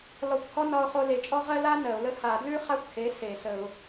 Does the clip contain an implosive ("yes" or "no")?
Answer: no